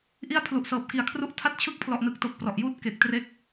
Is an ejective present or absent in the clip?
absent